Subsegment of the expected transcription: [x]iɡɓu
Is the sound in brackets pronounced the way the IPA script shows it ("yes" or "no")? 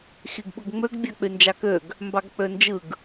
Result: yes